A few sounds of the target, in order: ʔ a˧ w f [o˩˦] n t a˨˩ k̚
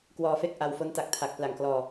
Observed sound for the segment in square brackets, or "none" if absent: o˦˥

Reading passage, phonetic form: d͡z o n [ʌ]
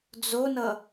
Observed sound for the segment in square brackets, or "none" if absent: ʌ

